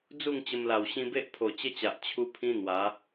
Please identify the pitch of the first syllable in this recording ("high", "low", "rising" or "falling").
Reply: falling